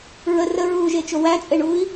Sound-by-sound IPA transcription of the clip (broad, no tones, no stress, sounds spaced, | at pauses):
ɹ ə r ə ɹ uː ʒ e t͡ʃ o w æ t͡sʼ e ɳ uː i̯